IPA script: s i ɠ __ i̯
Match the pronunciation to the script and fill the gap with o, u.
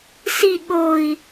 o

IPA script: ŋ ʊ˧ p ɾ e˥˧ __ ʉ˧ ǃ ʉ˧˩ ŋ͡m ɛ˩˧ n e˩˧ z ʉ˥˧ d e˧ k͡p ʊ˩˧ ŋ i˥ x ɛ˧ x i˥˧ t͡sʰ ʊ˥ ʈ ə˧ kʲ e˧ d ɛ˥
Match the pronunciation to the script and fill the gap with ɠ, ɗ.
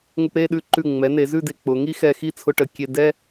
ɗ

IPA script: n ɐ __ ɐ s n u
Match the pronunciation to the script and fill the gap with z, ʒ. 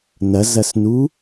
z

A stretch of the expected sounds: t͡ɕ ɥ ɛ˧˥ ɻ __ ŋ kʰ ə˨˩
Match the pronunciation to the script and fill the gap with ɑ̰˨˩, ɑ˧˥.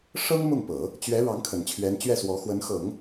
ɑ˧˥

